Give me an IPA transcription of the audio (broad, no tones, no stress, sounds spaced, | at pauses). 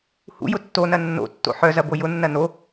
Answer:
h ṵ j ʊ tː o n ɐ nː o̰ tː o̰ ħ œ z ɐ b o j ʊ nː ɐ n o